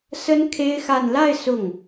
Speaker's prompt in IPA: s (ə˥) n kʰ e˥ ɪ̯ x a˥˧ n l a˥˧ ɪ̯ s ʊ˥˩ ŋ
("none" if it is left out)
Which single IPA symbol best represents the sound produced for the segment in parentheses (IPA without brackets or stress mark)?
ə˥